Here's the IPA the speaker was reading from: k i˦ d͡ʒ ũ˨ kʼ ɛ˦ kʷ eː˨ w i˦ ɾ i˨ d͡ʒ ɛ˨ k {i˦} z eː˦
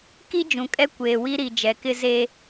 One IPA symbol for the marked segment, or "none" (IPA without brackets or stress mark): ɪ˦